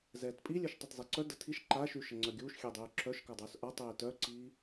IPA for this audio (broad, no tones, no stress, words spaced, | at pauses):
zɛːtpʼilʲœʃ tˤitzˤeǀœ də tʰiʃ ǃaʃy ʃəŋ͡ǀœɡʲuːʃ xʲedˤyːǁʰœʃ kadˤuːsʔatˤeː tœǀiː